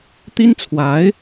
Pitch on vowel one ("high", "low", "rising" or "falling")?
high